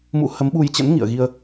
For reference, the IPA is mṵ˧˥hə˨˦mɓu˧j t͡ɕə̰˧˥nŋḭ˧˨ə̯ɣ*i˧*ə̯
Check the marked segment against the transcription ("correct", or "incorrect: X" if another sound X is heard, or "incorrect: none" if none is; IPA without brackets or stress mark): correct